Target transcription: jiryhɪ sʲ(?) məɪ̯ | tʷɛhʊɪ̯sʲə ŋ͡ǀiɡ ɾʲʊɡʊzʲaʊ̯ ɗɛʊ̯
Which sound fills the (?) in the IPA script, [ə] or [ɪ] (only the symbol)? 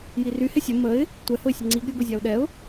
ə